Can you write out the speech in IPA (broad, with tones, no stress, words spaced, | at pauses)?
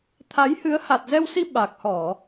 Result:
t̪ʰa˨˦jhɨ˨˦ə̯ ha˨˩t̚zɛ˧wsi˧ ɓa˨˩k̚hɔ˧˩˨